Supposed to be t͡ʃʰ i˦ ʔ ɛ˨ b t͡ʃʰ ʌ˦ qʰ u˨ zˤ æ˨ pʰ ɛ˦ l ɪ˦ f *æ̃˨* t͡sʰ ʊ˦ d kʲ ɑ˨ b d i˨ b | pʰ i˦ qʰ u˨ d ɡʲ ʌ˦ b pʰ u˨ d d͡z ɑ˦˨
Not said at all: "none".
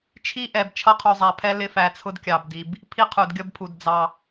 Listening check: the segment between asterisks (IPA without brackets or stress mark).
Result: æ˨